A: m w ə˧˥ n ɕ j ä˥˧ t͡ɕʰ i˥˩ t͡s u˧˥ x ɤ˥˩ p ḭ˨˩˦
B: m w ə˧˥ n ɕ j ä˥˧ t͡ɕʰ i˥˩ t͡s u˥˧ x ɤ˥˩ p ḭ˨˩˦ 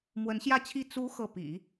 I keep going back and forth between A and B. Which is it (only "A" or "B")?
A